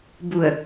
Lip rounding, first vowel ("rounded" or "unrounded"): rounded